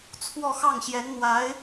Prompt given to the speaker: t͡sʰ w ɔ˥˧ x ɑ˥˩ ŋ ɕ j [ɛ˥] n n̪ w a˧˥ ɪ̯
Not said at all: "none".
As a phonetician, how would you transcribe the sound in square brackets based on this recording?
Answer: ɛ˧˥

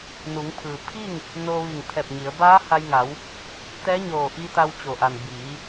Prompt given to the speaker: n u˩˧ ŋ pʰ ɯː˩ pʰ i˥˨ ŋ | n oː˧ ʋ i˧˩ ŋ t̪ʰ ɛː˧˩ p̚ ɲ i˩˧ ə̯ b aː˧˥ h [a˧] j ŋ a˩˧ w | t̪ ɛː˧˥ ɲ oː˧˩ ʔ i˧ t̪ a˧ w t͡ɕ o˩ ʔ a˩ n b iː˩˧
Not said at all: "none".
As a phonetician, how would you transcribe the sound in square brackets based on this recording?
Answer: a˧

